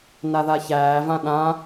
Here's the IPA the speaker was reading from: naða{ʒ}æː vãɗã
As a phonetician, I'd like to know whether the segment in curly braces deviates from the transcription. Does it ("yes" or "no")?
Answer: yes